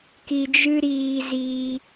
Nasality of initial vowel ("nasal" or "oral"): oral